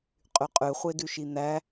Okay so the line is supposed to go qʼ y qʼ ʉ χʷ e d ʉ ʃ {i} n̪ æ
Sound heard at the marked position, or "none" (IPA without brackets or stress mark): i